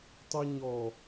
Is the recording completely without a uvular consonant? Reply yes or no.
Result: yes